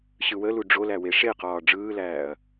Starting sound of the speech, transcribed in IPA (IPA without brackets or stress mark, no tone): ɕ